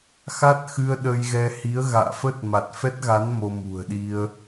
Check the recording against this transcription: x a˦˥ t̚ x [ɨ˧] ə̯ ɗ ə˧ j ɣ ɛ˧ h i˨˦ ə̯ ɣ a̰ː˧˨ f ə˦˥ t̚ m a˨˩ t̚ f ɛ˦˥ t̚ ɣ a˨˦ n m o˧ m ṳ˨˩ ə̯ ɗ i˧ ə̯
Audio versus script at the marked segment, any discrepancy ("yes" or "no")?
no